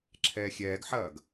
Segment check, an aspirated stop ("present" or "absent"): present